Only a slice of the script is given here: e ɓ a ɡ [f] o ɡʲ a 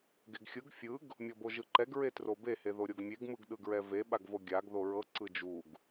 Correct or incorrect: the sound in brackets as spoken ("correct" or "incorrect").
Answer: incorrect